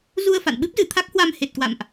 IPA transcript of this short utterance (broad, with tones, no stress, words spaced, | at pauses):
zu˧ə̯fa̰˧˨nɓɨ˦˥p̚zɨ˧˩ t̪ʰa˦˥k̚hwa˧m he˨˩t̚kwa̰˧˨mʔ